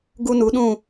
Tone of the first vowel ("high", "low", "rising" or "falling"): high